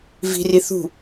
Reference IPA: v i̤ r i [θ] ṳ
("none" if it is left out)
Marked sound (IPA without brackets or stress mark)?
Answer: θ